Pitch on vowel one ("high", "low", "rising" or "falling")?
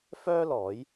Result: high